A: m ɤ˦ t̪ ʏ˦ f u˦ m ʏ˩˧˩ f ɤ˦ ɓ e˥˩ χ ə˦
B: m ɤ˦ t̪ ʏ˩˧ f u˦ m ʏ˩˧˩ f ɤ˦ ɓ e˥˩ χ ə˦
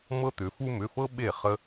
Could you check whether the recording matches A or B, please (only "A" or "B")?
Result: B